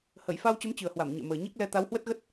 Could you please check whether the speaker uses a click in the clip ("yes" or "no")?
no